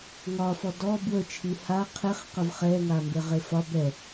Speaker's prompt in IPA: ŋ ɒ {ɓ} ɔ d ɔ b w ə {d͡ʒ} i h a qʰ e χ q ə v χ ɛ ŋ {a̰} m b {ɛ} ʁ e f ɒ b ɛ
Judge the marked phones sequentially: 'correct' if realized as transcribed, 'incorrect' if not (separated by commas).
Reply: incorrect, incorrect, incorrect, incorrect